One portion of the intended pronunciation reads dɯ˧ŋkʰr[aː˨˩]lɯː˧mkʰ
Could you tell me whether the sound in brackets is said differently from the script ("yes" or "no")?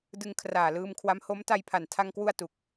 no